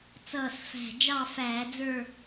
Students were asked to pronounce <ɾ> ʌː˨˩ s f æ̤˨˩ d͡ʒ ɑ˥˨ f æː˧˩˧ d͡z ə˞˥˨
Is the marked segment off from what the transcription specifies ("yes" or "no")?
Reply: yes